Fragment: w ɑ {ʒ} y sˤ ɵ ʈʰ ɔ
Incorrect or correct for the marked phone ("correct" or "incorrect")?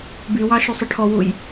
incorrect